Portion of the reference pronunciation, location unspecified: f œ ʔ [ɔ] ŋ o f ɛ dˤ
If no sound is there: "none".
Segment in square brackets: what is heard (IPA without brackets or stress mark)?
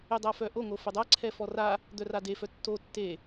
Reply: o